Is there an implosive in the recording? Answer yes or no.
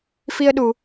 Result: yes